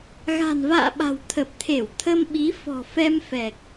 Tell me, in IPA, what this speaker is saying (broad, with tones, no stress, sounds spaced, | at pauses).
ɣ a̤˨˩ n v a̰ː˧˨ ɓ a̤˨˩ w t̪ʰ ə˨˩ p̚ t̪ʰ e˧˩ w t̪ʰ ə˧ m ɓ i˨˦ f ɔ̤˨˩ f ɛ˧ m f ɛ˨˩ k̚